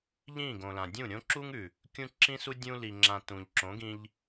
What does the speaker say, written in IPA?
ʎĩ˦˨ɡõ˨ lã˨dʲũ˦˨ ɾʲõ˦ǁu˦ŋʉ˨ | kʲũ˦ǁĩ˦su˦ dʲũ˦li˧ŋ͡ǁã˧ tũ˨ʎǁõ˨˦ɡĩ˧ʎ

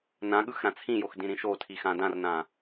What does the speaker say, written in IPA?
nãɠɯx ɾãt͡sʰĩjox dĩɾĩʃotʰi xãdãrnã

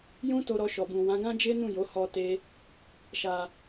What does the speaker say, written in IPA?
jũ˦ to˧ɾɔ˧ʃɔ˨bũ˨ wã˨˦ɡã˦d͡ʒe˦ nũ˦˨jo˨˦ hɔ˦te˦ | ʃa˧

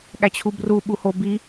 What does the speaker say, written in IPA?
ɠæt͡ɕʰubru ɓuhobi

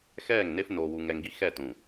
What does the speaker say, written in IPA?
xɛː˦˨ŋne˦f noː˨wu˨ŋɛ˨ŋɡi˦ xɛ˦˨tũ˨

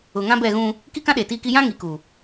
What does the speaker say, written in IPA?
ʊ˨ŋã˦bɛ˦˨ɣũ˦ | ki˦kã˦ ɗe˨tiː˦ki˦ jã˦ ŋi˨ku˨

